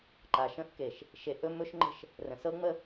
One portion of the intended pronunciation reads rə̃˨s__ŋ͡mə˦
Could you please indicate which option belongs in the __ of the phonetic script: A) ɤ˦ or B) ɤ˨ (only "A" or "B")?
A